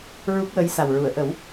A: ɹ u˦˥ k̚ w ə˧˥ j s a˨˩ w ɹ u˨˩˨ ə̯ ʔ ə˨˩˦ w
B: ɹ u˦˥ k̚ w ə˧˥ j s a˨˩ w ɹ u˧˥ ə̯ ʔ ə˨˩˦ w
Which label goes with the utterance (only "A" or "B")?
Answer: A